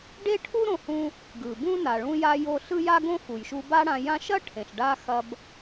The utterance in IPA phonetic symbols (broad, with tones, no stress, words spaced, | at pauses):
ɖe˥ʈʰu˥ɾõ˧hũ˧ | ɡɯ˩bũ˥ na˩ɭũ˧ja˧ jo˧ɬɯ˥ja˥ ɡõ˥xu˩jʃu˧ ba˥ɽã˧jã˥ ʃɐ˥ʈʰẽ˩ɬɖa˧ xɐ˧b